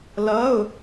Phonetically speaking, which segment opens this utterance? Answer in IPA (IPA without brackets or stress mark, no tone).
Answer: l